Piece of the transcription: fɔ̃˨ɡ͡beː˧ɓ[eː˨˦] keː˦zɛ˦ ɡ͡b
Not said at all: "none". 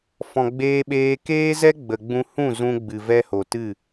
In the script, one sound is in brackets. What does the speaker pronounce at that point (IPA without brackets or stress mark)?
eː˧